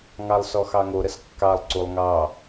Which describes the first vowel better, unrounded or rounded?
unrounded